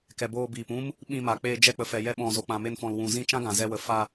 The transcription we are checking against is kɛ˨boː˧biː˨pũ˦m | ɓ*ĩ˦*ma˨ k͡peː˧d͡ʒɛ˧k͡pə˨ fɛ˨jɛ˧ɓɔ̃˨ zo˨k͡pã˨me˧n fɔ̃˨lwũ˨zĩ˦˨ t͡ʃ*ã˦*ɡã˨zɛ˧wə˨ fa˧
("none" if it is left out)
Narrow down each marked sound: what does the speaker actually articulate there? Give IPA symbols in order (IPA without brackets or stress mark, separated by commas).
ĩ˧, ã˦